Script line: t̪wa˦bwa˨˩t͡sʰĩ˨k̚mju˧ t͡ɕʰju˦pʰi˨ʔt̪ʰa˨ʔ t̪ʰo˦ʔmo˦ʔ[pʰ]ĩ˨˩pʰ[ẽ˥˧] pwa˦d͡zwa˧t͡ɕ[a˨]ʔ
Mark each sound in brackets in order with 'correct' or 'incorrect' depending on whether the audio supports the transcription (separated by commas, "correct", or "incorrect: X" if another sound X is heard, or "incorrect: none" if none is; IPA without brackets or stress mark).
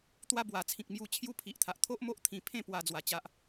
incorrect: t̪ʰ, correct, incorrect: a˦